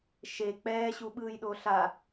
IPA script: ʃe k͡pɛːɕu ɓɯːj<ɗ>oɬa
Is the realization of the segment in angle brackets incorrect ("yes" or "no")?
no